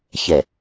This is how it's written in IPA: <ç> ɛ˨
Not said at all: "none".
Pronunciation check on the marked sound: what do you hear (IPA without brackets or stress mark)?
ç